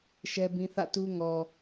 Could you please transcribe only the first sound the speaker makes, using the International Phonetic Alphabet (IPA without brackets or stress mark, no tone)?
ʃ